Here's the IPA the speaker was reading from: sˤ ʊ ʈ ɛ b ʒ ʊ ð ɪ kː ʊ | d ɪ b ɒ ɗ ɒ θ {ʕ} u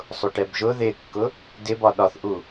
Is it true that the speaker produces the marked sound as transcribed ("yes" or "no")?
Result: no